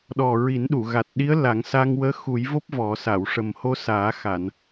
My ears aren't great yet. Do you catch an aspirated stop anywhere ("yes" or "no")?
no